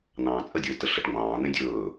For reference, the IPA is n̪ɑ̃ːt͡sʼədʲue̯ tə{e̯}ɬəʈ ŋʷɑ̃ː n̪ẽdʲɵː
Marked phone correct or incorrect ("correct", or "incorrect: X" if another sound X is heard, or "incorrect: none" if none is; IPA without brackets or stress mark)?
incorrect: none